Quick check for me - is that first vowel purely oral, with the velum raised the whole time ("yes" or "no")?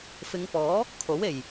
yes